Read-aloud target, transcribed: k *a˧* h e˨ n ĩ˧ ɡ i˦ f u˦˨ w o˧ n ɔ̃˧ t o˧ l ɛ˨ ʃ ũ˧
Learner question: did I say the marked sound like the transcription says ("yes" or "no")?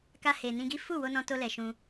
yes